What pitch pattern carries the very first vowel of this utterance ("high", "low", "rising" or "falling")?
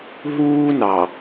high